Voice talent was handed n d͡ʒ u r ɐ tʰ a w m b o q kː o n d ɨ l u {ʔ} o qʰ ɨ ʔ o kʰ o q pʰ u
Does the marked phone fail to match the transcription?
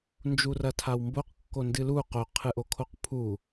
yes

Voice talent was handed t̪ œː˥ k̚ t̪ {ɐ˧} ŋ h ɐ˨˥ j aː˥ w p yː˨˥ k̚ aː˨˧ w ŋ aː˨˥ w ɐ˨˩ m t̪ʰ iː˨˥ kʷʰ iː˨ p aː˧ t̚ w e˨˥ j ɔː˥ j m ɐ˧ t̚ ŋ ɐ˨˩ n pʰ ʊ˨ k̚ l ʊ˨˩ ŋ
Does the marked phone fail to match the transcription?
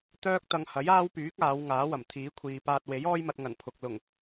no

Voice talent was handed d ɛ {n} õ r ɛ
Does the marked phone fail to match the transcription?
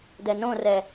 no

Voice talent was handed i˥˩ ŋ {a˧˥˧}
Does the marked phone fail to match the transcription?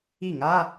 no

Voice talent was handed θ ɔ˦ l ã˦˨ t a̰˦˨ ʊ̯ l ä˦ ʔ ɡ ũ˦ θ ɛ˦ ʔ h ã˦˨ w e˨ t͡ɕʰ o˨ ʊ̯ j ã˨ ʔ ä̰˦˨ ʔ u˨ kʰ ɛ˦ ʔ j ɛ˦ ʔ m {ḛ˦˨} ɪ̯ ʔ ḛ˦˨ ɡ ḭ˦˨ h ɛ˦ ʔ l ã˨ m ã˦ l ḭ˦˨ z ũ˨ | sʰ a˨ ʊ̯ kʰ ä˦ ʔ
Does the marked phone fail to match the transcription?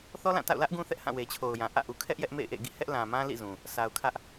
no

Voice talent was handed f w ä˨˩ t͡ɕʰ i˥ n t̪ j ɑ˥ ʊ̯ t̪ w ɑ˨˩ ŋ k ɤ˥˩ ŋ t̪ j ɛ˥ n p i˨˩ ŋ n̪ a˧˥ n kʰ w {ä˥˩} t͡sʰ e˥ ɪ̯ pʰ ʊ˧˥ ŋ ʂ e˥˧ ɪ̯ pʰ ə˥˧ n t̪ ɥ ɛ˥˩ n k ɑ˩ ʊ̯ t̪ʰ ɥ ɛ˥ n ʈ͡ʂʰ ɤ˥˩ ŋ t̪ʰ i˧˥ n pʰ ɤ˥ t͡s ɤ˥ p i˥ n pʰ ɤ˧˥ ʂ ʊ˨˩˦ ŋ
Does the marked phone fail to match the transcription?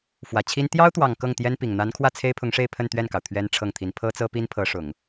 no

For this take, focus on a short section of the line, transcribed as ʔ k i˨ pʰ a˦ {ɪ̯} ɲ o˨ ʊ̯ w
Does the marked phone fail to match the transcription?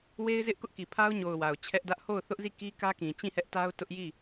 yes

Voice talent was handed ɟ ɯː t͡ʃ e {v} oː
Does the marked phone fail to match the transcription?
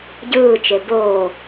yes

